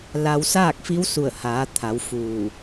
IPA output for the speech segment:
la˧w saː˥˨k̚fi˧˥wsu˧˩ə̯haː˩˧ t̪ʰa˩˧wfuː˧˩

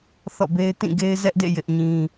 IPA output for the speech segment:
θɔ̰˦˨be˦ɪ̯ tĩ˦˨ɡe˦ɪ̯zɛ˦ʔdḛ˦˨ jɪ˦ʔɲĩ˦

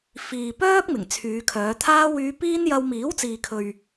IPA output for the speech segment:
fiː˨ pœː˥k̚mɪ˨˩ŋ t͡sʰyː˨˧kʰœː˨˧t̪ʰaː˥ wyː˧piː˥njɐ˧w miː˨˥wt͡siː˨kʰɵ˨ɥ

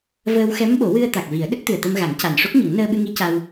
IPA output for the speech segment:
vəː˧wxɛ˧˥m ɓo˨˩˦wɨ˧ə̯ t̪a˨˩k̚vi˨˩˦ə̯ ɗə˦˥k̚t̪ɨ˨˩ə̯t̪ə˧mɣa˨˩˦ŋ ca˨˩nʂo˦˥k̚ɲə˨˩˦ŋ nəː˧ɓɨ˧ŋi˧˥ ca˧w

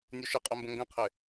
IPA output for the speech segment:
nʲuʃɪqʼœmbə̃ ŋɡə̃qʰɪ

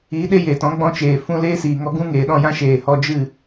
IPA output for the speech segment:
iː˨˦ɗe˦jeː˨tɔ̃˨˦ ɡ͡bɔ̃˦t͡ʃeː˨ fũ˧ leː˦siː˨ŋɔ˧ ɡũ˦ŋeː˨ɗɔ̃˦˨jã˦ ʃeː˨hɔ˧ d͡ʒɨ˦˨

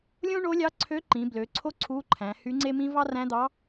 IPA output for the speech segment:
lʲõ˥ɳo˧˥ lʲɑ˧˥ǀʰø˧˥ǃĩ˩˧ blø˩˧ǀʰo˥ ǀʰu˧˥ǃʰæ̃˩˧ hy˧˥ŋ͡ǀe˥mĩ˥ vɑ˥ræ̃˧˥d̪ɑ˧˥

